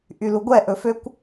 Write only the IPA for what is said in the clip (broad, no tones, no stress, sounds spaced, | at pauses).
ʔ y l u ɡʷ ɛ ʔ ɵ f ø kʷ